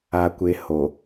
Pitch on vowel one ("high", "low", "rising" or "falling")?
low